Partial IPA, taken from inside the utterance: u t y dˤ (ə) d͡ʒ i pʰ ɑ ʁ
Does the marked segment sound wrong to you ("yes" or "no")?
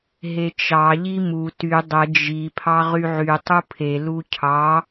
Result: no